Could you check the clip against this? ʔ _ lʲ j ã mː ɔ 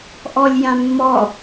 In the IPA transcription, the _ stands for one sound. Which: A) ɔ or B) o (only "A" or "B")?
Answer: A